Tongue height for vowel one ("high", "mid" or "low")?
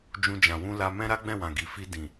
high